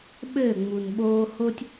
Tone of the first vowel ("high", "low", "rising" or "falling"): falling